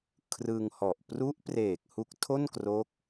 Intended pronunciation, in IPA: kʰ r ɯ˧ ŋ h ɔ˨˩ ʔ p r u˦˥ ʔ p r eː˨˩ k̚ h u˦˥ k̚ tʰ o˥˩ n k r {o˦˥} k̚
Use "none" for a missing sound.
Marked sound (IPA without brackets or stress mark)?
o˦˥